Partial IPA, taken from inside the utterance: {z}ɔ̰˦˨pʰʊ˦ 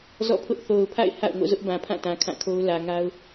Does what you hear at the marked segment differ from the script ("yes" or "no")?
no